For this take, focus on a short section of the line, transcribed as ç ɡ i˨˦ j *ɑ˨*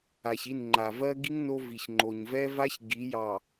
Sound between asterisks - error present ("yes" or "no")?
no